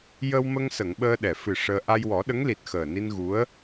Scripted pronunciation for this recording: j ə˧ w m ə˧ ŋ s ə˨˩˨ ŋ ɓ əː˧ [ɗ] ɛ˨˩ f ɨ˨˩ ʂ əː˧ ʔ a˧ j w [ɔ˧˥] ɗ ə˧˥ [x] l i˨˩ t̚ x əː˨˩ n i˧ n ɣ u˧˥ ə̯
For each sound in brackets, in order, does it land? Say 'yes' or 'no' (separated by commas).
yes, no, no